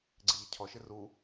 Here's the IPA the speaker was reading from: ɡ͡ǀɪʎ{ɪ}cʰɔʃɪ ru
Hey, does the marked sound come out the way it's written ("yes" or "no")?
yes